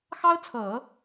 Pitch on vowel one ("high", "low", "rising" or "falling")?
high